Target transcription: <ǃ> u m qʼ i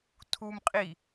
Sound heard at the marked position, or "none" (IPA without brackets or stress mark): tʰ